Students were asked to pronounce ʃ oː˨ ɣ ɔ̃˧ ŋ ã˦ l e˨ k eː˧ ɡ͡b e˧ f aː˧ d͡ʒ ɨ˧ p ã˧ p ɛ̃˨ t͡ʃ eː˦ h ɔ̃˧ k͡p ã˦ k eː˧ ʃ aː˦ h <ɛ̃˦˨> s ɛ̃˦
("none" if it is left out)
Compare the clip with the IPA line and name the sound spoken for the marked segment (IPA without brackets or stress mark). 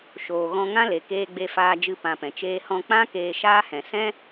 ɛ̃˨